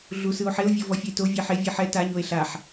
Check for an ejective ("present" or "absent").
absent